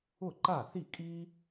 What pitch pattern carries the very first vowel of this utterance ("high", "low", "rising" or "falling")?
falling